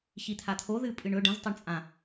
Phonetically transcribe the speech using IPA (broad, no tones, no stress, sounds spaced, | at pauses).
ç i t̪ʰ a t̪ʰ o ð ɨ pʼ ɨ ɳ ɵ ɖ ɐ̃ z tˤ a ɳ t͡sʼ ã